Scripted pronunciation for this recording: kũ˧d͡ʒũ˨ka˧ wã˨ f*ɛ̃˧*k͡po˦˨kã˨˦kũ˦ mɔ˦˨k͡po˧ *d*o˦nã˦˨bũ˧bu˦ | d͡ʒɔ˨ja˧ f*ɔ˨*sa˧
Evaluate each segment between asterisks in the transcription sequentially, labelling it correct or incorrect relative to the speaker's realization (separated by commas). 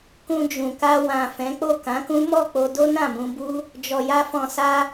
incorrect, correct, incorrect